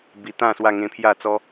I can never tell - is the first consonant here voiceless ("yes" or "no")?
no